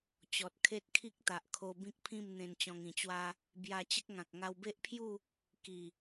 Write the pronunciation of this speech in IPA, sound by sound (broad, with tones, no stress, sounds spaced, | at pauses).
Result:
t͡ɕ ɔ˨ t̚ kʰ e˦ t̚ kʰ i˦ k̚ t̪ a˨ ʔ kʰ o˧ b ĩ˦ k̚ pʰ ĩ˥˧ m n̪ ẽ˧ n t͡ɕ ɔ̃˧ ŋ ĩ˨˩ t͡ɕ w a˦ | b j a˧ t͡ɕ ə˦ k̚ ŋ ã˨ k̚ ŋ a˧ w b e˦ ʔ pʰ j u˥˧ | k i˨˩